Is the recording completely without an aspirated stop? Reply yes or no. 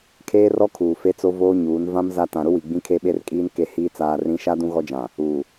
no